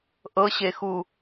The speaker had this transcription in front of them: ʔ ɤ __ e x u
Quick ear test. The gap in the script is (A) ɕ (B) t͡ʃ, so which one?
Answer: A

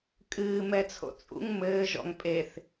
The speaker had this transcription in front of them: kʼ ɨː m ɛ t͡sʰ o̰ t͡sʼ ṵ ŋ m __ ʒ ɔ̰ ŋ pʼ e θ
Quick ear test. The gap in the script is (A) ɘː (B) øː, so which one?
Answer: A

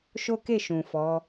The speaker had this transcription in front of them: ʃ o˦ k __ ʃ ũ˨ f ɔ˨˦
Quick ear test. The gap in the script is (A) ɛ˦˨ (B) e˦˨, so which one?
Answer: B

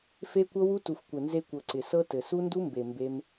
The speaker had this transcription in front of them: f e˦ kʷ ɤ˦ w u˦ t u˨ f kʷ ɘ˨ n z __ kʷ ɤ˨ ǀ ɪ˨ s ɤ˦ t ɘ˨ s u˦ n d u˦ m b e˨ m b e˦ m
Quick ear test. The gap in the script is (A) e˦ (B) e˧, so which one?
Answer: B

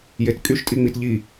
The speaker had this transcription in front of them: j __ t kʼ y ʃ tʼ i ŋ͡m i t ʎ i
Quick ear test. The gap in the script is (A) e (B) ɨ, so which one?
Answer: A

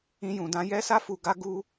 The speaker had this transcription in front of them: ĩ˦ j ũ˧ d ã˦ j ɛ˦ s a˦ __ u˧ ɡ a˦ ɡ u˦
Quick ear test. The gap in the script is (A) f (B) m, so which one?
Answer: A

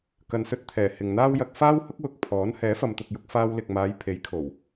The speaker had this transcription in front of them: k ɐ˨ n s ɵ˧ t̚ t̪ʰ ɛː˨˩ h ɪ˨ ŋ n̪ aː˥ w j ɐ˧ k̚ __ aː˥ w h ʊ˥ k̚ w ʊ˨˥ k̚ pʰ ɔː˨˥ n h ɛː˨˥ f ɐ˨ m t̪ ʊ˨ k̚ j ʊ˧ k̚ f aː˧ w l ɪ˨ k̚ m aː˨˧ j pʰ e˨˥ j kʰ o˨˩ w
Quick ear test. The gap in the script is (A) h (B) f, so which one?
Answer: B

